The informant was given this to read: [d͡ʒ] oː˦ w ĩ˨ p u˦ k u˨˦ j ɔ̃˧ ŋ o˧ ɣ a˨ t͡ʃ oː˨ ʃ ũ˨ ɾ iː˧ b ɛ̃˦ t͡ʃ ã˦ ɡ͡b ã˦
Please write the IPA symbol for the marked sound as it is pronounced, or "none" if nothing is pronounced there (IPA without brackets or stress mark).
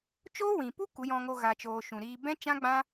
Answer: t͡ʃ